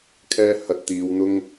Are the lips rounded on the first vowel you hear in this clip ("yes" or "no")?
no